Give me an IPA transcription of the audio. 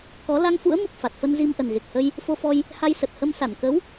k ɔ˨˦ l a˧ ŋ f ṵ˧˥ ə̯ m u˨˩ k̚ f a˨˩ t̚ f ə˧ n z i˧ m ʔ ə˨˩ n ɣ e˨˩ k̚ h ə˧ j | f o˧ f ɔ˧ j | h a˧ j s ə˨˩ t̚ h ə˧ m s a˧˩ n k ə˨˦ w

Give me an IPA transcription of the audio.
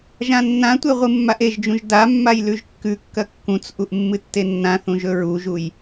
ʒ ã nː ã tʷ e ʁʷ ɨ mː a ʔ e ʒ d͡ʒ ũ ʒ d a mː a j l ʉ ʒ kː ʉ kː ɐ kː ũ t͡s ʔ u ʔ mː ɨ tː e nː ã θ ũ ʒ ɵ ɹ u ʒ u j

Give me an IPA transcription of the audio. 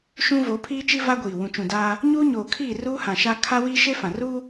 ʃ ũ˦ v o˨˦ pʰ iː˦ t͡ʃ i˦ v a˦ ɡʷ iː˨ w ũ˨ t͡ʃ ũ˨ d aː˦ | ɲ uː˦ ɲ oː˨ kʰ iː˦˨ r uː˦ h ã˨ ʃ a˦ kʰ a˦ w iː˦ ʃ e˦ f ã˨ r uː˦

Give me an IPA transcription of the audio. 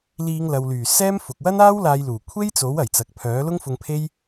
l iː˨˧ ŋ l ɐ˨ w l yː˨˩ s ɛː˥ m f ʊ˨ k̚ w ɐ˥ n aː˥ w l aː˨˧ j l uː˨˩ kʷʰ e˥ j t͡s o˨˥ w ɐ˨˩ j t͡s ɐ˨ k̚ pʰ œː˨˥ l ʊ˥ ŋ f ʊ˧ ŋ pʰ e˥ j

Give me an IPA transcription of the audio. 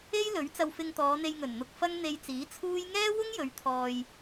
e˥ j l ɵ˨˥ ɥ t͡s ɐ˧ w f ɪ˧ ŋ t̪ ɔː˨˧ n̪ e˧ j ŋ ɵ˨˩ n n̪ ʊ˧ k̚ f ɐ˥ ŋ n̪ e˧ j t͡s iː˨˥ t͡sʰ uː˥ j ŋ ɛː˥ w ʊ˥ ŋ j ɵ˨˧ ɥ t̪ʰ ɔː˧ j

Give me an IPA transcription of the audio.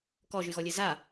k ɔ ʒ y ɣ ɔ lʲ e z a

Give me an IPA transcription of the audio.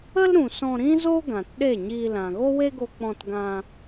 ə˦ l ɾ ũ˨ s ɔ̃˧ ɾ ĩ˦ z o˦ ɡ ã˨ t ɗ e˦˨ ɲ iː˧ l ã˨ ɣ o˦ w e˦ ɡ o˧ k͡p ɔ̃˧ t ɡ ã˧

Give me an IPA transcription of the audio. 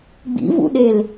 ɡ͡b ḭ v ṵ ɗ e l

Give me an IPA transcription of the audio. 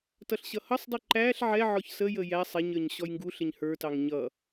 t ʌ ɬ ɕ ʌ h ʌ sˤ dˤ i ǃ æ ɬ ʕ ɛ ʕ ɔ ç s ə j ə j æ sˤ ɛ ɲ ə˞ ɲ ɕ ɔ j ŋ ɡ u ɬ ɪ ɲ h ə˞ t ɑ ŋ ɲ ʌ

